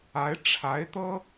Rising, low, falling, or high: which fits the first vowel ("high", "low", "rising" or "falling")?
rising